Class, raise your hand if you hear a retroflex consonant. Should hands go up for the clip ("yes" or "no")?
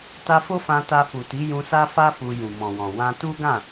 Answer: no